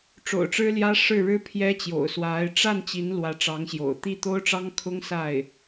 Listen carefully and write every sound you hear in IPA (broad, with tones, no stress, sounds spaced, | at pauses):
ʈ͡ʂ o̰˨˩ ʊ̯ ʈ͡ʂ ɻ̩˥ l j ä˥ ʂ ɻ̩˥˩ ɻ ɻ̩˥ pʰ j ɛ˥ t͡ɕ j o̰˨˩ ʊ̯ s w a˧˥ ɪ̯ ʈ͡ʂ a˥˩ n t͡ɕ i˧˥ n l w ä˧˥ ʈ͡ʂ ɑ˧˥ ŋ ɕ j o̰˨˩ ʊ̯ t̪ i˥˩ t̪ o˥ ʊ̯ ʈ͡ʂ ɑ˥ ŋ kʰ ʊ˥ ŋ s a˥˩ ɪ̯